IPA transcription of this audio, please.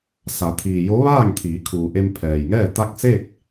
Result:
s a˩˧ t̪ʰ iː˩ j o˧˥ ʋ aː˥˨ ŋ t̪ʰ iː˩˧ kʰ uː˩ ʔ e˧ m pʰ ɛː˩ j ŋ ɛː˥˨ t̪ a˥˨ k̚ s e˥˨ k̚

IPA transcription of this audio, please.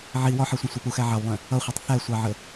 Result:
ʕ i w ɒ ħ ɜ sʷ ɛ̃ sʷ ɛ p u x æ ʕ ɑ w lˠ ɛ̃ | ʌ χʷ ʌ tˤ θ æ sʷ ɑ ʕ ə

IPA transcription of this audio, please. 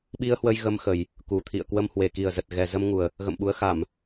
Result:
ɓ i˧ ə̯ h w ə˧ j ɣ ə˧ m x ə˨˩ j | k u˨˩ t̪ʰ ḭ˧˨ ə̯ k w ə˧ m h w e˨˩ k i˨˩ ə̯ z ə˨˩ t̚ ɣ ɛ˨˩ z ə˧ m ŋ u˨˩ ə̯ | ɣ ə̰˧˨ m ɓ u˨˦ ə̯ x a˧˩˨ m

